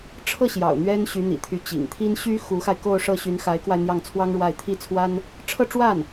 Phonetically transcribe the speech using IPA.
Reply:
ʈ͡ʂʰ ɤ˥˩ ɕ j ɑ̰˨˩ ʊ̯ n̪ ɥ ɛ˥ n ɕ y˧˥ n̪ ḭ˨˩ t̪ʰ y˧˥ t͡ɕ ḭ˨˩ ŋ t̪ʰ i˥ n ɕ y˥ x u˧˥ x a˧ ɪ̯ k o˥˧ ʊ̯ ʂ ɤ˥˩ ɕ y˧˥ n x a˧˥ ɪ̯ k w a˧ ɪ̯ n̪ j ɑ˥˩ ŋ t͡sʰ w ɑ˥ ŋ ɻ w a˥˩ ɪ̯ t̪ʰ i˥ t͡sʰ w a˥ n | ʈ͡ʂʰ ɤ˥˧ ʈ͡ʂ w a˥˩ n

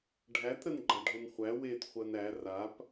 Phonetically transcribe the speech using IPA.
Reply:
ɖʱ æ t ɾ ə n ɡ͡ǃ a ɖʱ ʊ n χʷ æ w e t χʷ ɜ n æ r a p

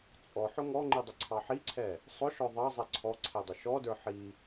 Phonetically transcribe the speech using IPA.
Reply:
t͡sʼ ɔ ħ ʊ ŋ ɔ ŋ͡ǃ i dˤ ɪ ǀʰ ɑ ħ i ǀʰ ɛ | sˤ ʊ ʃ ɔ ðˤ ɑ zˤ ɛ ǀʰ ɔ ǀʰ ɛ dˤ ʊ ʃ ɔ d ə˞ ħ i

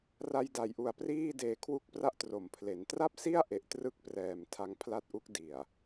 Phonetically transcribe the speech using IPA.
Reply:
r a˧ j d a˩˦ j ʔ u˨˩ a̯ p r iː˥˩ d eː˨˩ kʰ w u˦˥ k̚ p r a˦˥ ʔ t r o˩˦ m pʰ l e˩˦ n t r a˥˩ p̚ s i˥˩ a̯ ʔ e˨˩ ʔ t r ɯ˥˩ k̚ p r ɛː˨˩ m tʰ a˧ ŋ pʰ l a˥˩ t̚ ʔ u˦˥ k̚ d i˨˩ a̯

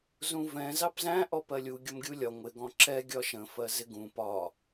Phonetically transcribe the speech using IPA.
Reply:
z ũ v ɛ̃ z ɑ p z æ̃ ʔ ɔ p ɜ lʲ u ɡʲ ʊ m ɡʲ u lʲ ɒ ŋʷ ɪ ɡ ɔ̃ ǁ ɛ ɡʲ ɒ ʃ ə̃ f ɜ z ɪ ɡ ũ p ɒ

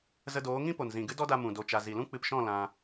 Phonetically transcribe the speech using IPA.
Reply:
z ə˧ d oː˨˦ ŋ ĩ˦ p o˨ n z ĩ˨ ɡ ɨ˦ d ɔ˦ d a˧ m ũ˨ d o˧ t͡ʃ a˧ z i˨ l ũ˦ k͡p ɨ˧ p ʃ ɔ̃˦˨ l ã˧

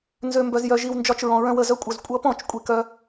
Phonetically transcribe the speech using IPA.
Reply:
n z ø˨ m b œ˨ z j œ˨ ʒ i˨ w n d͡ʒ ɒ˧ t͡ʃ ɹ ɔ̃˨ ɹ œ̃˧ w ə˦˨ z œ˧ kʷʼ œ˨ z kʷʼ ʌ˧ p ɔ̃˦˨ t͡ʃ kʷʼ i˨ k œ˧

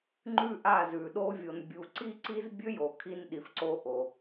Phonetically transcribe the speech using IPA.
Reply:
ŋ͡ǃ ʉ˦ ʔ a˦˨ z ʉ˨ ɗ o˦ vʲ o˨ n bʲ u˨ ǀ i˦ ǀ i˦ z bʲ ɵ˦ j o˨ kʰ i˧ n ɗ i˨ f ǀ o˧ ʔ o˨

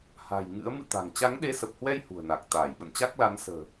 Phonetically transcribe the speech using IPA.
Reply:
h a̤˨˩ j ŋ ɨ̰˧˥ ə̯ m ɨ̰˧˨ t̪ a̤˨˩ ŋ t͡ɕ a˨˦ ŋ ɗ e˨˦ s ə˨˩ p̚ h w ɛ˧ j h ṳ˨˩ ə̯ n a˨˩ k̚ t̪ aː˧˩ j ɓ ə̰˧˨ n t͡ɕ a˦˥ k̚ l a˨˦ n s ə̤ː˨˩

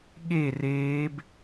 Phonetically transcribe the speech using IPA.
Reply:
ɠ e r eː b

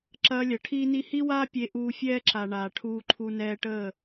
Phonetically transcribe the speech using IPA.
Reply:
ǁ ɐː˧ lʲ ɐ˨ ʈʰ iː˦ n i˦ h i˦ w aː˦ pʲ e˧ ʔ uː˧ fʲ ɛː˦ ǁ a˨ ɳ aː˨ ʈʰ uː˧ ǃʰ u˧ n ɛː˧ ʈ əː˦˨

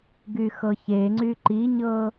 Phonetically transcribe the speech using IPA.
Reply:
ɡ y x ɤ ç e ŋ͡ǀ y ǃ i ɲ ɤ

